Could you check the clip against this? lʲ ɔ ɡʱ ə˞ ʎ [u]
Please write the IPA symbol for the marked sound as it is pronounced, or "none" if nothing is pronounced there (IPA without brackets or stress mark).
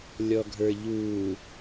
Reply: u